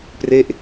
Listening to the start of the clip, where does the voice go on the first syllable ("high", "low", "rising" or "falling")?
falling